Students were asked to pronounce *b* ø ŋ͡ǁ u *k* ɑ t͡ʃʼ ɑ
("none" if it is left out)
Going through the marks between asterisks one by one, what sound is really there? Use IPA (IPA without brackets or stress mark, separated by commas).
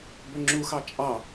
b, x